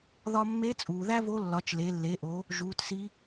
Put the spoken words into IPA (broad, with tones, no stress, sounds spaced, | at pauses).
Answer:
ð ɒ˧ mː e˧˥ t͡sʼ uː˩ ð æ˥ v o˧˥ lː ɒ˩˧ t͡ʃ l e˩˧ lː e˩˧ ʔ o˩˧ | ʒ uː˩˧ t s i˧˥